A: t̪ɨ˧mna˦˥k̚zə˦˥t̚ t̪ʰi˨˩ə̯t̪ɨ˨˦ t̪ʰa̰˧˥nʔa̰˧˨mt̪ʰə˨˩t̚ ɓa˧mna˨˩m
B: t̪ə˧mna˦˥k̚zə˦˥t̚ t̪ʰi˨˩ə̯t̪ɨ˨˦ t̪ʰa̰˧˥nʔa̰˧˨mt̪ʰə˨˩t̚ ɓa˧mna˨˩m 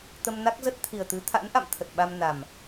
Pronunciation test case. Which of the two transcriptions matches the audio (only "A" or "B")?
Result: B